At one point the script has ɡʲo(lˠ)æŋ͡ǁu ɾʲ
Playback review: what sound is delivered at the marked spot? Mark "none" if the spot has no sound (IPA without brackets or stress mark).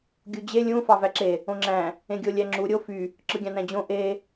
lʲ